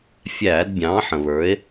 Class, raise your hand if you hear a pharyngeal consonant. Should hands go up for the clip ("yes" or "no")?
yes